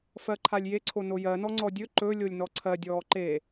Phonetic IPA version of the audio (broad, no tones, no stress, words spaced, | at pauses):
fɜǃʰalʲje ǀʰonojɜnɔ ŋ͡ǀɔdʲɵ ǃɵlʲolʲ nɔǀʰɜdʲɔː ǃe